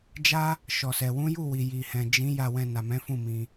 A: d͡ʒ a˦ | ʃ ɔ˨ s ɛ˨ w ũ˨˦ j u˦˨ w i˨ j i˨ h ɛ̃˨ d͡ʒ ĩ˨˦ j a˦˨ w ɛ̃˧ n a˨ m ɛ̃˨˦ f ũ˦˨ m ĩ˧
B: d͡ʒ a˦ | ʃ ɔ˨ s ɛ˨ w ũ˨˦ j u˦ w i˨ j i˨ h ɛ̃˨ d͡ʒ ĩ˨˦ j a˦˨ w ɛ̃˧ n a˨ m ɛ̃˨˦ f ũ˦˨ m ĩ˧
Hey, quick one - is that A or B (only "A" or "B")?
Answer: A